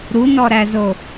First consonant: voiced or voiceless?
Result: voiced